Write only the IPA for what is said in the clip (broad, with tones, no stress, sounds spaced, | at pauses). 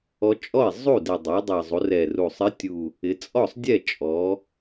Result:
ɔ˧˥ t͡ʃʼ ɔ˥˩ i̯ zˤ u˥˩ d ɪ˨˩ dˤ u˩˧ dˤ ɛ˨˩ zˤ u˩˧ r ɛ˨˩ r u˨˩ sˤ ɪ˧˥ tʲ u˨˩ | ɪ˩˧ t͡sʼ ɔ˥˩ sˤ dʲ ɛ˥˩ t͡ʃʼ ɔ˩˧